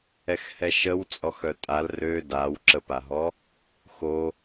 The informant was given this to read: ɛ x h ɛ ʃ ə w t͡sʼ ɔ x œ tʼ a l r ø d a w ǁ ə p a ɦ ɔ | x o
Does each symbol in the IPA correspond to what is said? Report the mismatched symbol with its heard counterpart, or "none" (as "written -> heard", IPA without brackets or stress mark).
none